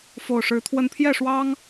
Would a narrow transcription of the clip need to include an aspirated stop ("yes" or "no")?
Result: yes